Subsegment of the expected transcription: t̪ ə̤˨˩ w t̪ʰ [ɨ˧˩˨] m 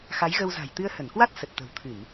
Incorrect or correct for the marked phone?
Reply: correct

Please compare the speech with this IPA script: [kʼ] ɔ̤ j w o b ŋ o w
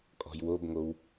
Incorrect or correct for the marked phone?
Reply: correct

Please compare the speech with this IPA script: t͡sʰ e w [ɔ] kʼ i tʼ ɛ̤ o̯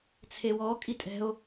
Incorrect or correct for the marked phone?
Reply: correct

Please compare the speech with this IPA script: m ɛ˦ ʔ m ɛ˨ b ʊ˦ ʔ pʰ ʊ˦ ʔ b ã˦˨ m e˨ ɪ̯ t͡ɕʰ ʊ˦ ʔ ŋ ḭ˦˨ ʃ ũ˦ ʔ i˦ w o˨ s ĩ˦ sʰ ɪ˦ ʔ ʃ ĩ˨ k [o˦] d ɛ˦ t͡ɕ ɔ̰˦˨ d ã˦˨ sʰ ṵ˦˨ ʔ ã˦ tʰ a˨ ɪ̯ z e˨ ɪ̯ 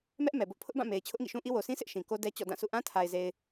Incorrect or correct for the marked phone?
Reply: correct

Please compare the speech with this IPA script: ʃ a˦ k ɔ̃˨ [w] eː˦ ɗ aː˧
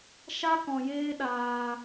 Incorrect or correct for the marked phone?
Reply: incorrect: j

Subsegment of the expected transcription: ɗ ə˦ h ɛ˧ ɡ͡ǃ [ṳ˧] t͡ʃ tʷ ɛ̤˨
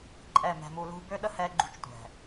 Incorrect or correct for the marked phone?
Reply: correct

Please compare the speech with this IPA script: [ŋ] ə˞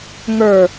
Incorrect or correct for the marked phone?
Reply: correct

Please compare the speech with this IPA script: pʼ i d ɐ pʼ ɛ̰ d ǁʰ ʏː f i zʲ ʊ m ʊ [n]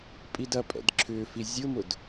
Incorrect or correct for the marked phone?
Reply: incorrect: d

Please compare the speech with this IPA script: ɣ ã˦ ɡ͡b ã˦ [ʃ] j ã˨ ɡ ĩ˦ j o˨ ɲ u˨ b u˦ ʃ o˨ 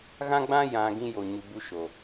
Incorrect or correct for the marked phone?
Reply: incorrect: none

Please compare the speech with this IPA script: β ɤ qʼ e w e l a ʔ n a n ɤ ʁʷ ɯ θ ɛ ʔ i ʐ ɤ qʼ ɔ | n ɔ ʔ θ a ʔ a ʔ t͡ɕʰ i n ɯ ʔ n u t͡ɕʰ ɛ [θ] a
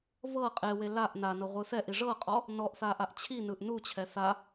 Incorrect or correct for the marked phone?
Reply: correct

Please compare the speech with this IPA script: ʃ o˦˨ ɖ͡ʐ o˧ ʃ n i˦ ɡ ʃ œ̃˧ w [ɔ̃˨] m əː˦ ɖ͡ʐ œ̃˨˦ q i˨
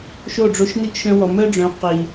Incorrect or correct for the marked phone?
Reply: incorrect: ɔ˨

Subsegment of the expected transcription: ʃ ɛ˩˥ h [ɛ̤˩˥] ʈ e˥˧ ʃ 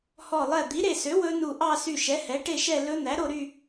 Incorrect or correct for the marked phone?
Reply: incorrect: ɛ˩˥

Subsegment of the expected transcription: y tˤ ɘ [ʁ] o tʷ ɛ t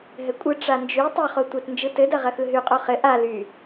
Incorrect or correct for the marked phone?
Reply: incorrect: χ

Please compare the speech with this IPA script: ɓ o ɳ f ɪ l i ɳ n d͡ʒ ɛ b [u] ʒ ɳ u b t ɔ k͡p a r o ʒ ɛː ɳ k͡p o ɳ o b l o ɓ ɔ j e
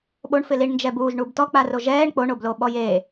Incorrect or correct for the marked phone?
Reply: incorrect: uː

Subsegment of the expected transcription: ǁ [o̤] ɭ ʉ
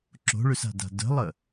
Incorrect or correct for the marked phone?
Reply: correct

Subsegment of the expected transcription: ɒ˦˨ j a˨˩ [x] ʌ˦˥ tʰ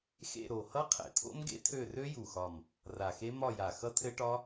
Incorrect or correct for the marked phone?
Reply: correct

